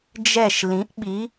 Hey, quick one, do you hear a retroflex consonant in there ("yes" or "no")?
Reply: no